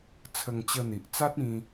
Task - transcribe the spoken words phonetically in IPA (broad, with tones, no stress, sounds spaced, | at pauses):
t͡sʰ ə˧ ŋ t͡ɕ ə˧ n̪ i˨ ʔ t͡s a˦ t̚ ĩ˦